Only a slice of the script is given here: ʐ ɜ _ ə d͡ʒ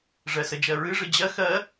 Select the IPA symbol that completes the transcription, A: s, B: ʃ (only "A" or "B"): A